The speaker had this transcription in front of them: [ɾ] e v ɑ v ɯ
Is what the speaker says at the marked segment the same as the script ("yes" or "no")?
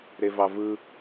yes